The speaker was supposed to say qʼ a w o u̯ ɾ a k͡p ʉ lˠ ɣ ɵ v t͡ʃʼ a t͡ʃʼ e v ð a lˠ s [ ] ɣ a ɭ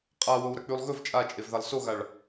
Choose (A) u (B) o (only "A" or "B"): B